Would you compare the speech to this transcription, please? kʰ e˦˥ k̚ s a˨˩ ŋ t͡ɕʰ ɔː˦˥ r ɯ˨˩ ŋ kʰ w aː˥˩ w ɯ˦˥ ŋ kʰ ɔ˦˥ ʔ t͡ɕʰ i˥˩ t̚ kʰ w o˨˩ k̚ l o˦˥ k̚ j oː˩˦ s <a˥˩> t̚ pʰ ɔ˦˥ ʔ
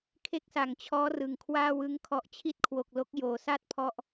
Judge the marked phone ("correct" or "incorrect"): correct